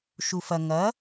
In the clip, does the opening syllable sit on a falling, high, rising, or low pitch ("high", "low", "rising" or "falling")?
low